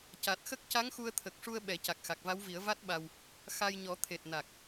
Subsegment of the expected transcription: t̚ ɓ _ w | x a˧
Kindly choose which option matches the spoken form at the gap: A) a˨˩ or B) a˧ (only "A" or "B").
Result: B